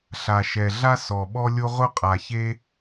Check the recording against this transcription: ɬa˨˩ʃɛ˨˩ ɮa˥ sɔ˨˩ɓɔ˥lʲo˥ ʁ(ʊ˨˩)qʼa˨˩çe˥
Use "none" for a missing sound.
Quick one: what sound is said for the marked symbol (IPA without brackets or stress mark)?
ʊ˥